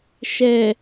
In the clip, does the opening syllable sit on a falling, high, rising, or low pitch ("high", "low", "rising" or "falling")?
low